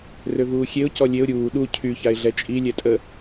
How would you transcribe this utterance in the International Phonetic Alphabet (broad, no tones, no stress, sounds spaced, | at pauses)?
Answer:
r ø v uː xʲ e ʊ̯ c ɔ lʲ e ʊ̯ ɾʲ uː ɗ u cʰ y ç a ɪ̯ ɮ ɛ t͡ʃʼ i lʲ ɛ tʼ ə